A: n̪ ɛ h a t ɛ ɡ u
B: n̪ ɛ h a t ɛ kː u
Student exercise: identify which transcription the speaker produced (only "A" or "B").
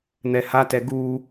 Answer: A